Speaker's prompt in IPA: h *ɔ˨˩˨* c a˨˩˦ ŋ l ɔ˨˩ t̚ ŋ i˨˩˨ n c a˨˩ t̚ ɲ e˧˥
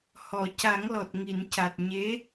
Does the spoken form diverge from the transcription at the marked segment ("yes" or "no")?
no